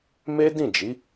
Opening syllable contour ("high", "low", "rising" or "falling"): high